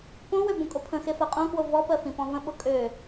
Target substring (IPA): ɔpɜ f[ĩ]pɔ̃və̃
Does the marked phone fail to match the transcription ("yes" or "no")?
no